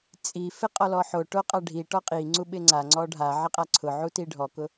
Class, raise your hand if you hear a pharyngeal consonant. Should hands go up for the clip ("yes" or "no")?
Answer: yes